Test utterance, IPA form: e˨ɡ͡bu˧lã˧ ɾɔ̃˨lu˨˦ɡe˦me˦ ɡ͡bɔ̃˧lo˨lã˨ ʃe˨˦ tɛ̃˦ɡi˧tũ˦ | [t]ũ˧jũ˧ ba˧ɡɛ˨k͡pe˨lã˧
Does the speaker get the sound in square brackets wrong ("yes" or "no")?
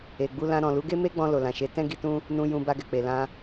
yes